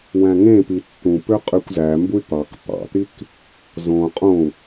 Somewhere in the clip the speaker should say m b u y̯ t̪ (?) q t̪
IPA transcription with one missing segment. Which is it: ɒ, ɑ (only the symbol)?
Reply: ɑ